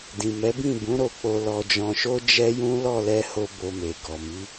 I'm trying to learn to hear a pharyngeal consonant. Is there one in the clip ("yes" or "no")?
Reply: no